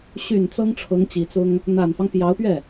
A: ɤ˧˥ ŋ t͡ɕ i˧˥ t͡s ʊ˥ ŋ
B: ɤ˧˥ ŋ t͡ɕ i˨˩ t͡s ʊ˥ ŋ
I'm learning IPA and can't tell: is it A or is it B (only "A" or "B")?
B